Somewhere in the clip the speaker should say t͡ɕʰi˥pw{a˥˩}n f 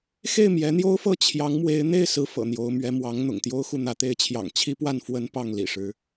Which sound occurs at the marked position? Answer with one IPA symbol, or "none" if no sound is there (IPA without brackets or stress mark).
a˥˩